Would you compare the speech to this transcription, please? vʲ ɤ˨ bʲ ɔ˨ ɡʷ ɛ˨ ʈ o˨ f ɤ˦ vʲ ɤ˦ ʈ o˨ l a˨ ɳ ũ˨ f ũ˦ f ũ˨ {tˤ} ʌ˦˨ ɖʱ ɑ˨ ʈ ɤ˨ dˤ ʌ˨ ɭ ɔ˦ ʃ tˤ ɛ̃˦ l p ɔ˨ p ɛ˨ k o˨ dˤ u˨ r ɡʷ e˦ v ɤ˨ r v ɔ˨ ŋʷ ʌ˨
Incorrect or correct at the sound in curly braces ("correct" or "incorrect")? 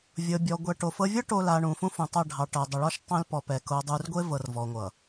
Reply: correct